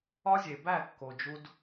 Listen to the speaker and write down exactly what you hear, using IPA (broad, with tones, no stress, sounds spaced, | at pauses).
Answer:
ɒ˧ zʲ e˨ b æ˦˨ kː o˨ d͡ʒ u˧ d